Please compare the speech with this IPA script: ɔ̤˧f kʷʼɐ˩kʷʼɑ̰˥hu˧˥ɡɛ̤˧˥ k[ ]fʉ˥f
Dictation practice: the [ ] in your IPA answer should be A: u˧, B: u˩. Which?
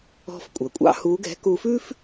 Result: A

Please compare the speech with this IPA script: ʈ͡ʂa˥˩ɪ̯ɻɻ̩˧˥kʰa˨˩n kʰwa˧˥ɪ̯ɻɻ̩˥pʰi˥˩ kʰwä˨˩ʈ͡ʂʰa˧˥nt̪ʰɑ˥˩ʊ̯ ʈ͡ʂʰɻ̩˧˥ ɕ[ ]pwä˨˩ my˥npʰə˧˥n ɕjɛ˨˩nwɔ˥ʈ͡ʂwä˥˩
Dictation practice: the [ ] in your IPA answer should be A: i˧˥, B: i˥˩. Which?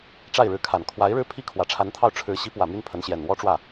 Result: A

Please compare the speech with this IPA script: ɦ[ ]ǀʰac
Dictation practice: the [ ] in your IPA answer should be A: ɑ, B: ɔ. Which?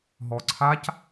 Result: B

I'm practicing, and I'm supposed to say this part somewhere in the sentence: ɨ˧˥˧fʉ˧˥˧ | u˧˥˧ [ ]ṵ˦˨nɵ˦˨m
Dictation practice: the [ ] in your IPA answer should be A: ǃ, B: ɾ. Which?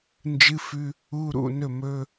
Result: B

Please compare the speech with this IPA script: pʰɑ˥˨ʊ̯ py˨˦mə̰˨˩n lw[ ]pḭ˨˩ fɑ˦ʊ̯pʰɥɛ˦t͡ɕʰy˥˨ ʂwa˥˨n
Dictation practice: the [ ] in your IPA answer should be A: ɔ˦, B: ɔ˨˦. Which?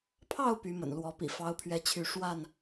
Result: B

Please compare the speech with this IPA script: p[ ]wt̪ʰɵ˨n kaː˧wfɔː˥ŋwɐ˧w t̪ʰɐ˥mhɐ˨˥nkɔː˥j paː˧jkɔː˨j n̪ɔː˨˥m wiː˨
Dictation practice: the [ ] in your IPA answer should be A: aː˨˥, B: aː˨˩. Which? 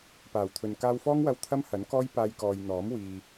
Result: B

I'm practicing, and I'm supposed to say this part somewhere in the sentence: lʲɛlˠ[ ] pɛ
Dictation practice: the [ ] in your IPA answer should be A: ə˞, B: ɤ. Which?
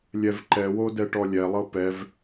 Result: B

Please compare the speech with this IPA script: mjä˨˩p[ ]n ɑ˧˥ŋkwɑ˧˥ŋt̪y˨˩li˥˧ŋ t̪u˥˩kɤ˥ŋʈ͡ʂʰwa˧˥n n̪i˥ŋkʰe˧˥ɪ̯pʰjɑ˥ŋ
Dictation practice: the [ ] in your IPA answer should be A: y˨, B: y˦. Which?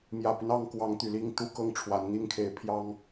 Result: B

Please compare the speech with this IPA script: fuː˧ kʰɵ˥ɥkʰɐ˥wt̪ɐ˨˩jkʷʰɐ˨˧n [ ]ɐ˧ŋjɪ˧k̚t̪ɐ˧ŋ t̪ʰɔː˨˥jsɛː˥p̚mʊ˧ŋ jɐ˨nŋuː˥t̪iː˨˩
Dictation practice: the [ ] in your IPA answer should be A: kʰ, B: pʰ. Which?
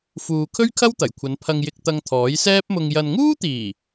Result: B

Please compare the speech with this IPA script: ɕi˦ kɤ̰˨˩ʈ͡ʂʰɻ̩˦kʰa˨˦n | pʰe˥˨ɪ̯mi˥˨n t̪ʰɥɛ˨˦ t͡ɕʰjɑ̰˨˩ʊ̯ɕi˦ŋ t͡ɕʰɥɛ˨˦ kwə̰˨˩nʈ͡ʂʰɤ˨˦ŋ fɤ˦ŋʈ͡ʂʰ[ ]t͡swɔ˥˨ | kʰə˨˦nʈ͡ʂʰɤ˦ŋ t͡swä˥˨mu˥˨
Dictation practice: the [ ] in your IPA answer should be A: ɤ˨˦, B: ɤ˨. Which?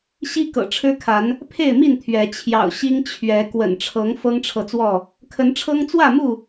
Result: B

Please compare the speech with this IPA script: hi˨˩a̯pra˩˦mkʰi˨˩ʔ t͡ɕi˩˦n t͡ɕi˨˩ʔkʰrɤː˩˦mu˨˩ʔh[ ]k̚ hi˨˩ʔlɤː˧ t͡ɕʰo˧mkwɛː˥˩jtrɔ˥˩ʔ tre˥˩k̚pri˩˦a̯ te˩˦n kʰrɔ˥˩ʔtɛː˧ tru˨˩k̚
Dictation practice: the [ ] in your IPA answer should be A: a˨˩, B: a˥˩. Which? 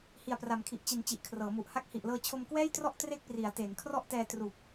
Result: B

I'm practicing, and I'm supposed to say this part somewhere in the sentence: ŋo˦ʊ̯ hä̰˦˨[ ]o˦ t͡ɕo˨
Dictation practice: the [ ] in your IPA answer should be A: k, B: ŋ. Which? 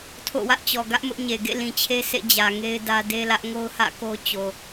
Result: A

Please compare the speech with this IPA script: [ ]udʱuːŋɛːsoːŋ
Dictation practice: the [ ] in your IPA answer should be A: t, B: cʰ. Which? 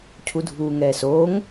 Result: B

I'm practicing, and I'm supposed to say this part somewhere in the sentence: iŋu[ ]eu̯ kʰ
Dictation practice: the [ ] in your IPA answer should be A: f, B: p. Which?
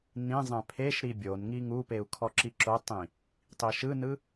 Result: B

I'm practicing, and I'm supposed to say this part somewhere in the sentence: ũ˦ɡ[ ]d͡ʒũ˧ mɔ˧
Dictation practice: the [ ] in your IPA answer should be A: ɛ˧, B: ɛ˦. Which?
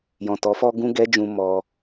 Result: B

